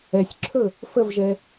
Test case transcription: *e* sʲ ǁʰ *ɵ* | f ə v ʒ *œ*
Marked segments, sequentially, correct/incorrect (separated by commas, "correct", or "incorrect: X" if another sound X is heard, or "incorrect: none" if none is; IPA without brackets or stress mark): incorrect: ɛ, correct, incorrect: ɛ